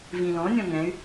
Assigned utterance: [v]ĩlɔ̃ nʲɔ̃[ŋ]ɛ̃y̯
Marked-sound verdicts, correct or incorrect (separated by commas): correct, correct